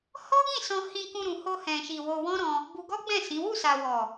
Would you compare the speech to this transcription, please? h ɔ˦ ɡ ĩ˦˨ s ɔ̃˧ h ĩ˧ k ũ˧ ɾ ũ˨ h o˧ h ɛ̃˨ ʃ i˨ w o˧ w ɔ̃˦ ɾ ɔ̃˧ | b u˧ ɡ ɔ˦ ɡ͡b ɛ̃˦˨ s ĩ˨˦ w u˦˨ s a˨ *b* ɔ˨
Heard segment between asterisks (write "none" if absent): w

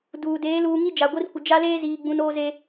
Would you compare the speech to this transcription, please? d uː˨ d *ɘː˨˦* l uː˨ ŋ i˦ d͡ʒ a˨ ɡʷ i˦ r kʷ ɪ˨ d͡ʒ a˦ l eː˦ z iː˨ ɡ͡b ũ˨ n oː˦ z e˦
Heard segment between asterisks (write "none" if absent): eː˨˦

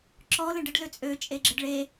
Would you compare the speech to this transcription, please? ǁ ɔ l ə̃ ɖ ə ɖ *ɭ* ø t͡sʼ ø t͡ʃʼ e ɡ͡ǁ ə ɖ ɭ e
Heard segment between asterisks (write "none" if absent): l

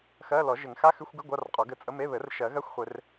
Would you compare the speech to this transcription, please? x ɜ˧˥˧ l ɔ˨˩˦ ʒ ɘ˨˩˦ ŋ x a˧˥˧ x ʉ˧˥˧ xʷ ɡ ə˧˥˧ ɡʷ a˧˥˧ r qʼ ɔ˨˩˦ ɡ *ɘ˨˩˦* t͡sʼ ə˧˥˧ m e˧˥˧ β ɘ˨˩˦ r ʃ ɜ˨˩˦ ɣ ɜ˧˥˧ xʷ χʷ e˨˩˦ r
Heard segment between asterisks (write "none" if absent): ɘ˨˩˦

